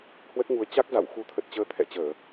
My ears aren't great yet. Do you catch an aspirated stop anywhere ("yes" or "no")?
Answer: yes